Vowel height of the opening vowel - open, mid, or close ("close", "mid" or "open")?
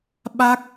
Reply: open